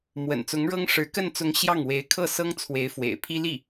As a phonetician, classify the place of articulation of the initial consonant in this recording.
labial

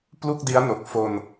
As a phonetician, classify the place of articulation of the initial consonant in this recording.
labial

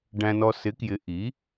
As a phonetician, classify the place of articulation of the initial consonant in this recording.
retroflex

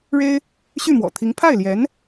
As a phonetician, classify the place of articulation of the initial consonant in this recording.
retroflex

